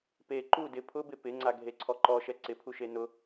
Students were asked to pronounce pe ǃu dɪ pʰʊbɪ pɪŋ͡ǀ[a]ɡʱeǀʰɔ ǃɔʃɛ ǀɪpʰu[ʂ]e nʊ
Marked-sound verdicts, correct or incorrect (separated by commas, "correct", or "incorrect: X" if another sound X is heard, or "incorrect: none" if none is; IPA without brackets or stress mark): correct, incorrect: ʃ